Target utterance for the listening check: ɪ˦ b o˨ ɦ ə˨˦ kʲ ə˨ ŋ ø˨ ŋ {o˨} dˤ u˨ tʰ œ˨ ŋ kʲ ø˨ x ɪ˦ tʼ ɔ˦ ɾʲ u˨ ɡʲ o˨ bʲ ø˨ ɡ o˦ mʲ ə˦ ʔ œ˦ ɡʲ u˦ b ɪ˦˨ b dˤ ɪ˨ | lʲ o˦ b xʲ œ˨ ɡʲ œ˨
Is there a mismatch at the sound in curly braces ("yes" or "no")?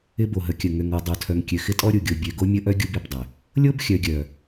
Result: no